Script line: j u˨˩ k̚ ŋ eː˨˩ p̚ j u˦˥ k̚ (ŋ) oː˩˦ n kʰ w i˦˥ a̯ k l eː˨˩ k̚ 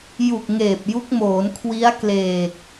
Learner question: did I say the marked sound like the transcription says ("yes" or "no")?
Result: no